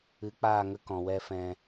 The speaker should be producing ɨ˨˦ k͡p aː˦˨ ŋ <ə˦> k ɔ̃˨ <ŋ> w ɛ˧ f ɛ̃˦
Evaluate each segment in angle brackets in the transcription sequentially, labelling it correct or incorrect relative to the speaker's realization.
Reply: correct, incorrect

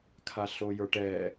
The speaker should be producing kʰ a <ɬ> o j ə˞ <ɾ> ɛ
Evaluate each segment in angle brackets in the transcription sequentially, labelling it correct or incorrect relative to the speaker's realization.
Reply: correct, incorrect

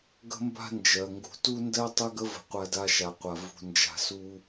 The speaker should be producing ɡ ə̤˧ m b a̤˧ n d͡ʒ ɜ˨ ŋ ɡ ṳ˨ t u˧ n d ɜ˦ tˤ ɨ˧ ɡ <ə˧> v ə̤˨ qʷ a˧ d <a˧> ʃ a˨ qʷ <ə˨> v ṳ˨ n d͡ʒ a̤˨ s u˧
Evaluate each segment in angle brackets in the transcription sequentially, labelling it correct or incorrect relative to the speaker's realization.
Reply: correct, correct, incorrect

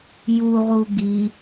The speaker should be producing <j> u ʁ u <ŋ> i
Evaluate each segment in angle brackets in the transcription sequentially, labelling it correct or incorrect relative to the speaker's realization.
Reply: correct, incorrect

